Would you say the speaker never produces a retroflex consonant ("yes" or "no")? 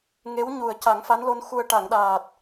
no